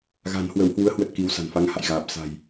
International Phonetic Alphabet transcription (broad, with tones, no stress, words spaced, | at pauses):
ɣa̤˨˩nhwə˧˩whwu˨˦ə̯ hwə˦˥t̚ki˨˦wsa̤˨˩n fa˨˦ŋha̰˧˨jɣaː˨˩p̚ sa̤˨˩j